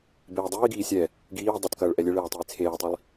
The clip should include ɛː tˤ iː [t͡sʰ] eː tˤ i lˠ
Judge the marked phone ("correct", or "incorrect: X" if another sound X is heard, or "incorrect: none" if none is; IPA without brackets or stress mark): correct